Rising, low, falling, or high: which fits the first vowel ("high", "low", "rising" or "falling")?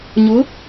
rising